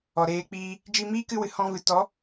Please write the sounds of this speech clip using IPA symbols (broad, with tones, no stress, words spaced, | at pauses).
ɔ˨ɾeː˧k͡piː˧ | d͡ʒi˧miː˦kɨ˧wɨ˨ hɔ̃˧vɨ˨ tɔ˨˦